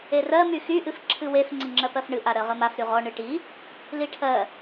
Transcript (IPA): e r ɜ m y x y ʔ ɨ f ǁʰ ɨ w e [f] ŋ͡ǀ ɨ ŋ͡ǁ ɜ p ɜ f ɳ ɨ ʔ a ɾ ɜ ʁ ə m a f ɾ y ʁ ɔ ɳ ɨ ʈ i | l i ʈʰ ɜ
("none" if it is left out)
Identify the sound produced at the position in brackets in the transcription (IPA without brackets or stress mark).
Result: f